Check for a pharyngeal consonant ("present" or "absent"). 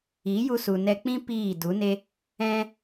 absent